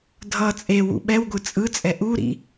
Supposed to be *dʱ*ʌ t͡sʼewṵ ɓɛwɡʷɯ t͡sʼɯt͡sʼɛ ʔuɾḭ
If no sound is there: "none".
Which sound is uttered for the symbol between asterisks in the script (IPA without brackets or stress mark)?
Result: dʱ